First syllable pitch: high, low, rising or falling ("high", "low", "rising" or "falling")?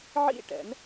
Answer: falling